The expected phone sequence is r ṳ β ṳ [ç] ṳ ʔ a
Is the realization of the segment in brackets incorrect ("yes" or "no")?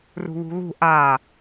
yes